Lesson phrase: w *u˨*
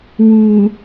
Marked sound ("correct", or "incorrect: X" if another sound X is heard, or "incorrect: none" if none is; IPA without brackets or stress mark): correct